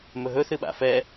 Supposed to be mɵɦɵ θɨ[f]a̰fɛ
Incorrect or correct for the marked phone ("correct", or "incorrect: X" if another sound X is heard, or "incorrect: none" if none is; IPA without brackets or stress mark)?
incorrect: ɓ